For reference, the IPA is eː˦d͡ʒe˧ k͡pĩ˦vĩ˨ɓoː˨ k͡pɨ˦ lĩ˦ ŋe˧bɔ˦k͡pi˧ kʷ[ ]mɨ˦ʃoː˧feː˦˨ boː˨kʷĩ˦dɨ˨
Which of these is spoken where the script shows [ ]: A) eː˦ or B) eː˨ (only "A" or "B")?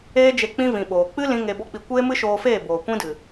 A